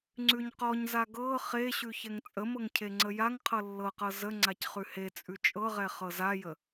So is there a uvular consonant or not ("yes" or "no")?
yes